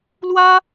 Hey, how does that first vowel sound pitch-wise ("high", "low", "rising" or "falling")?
high